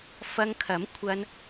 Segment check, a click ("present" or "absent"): absent